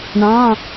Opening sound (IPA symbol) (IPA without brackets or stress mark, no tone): ɳ